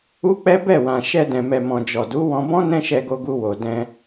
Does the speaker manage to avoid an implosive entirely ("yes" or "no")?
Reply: yes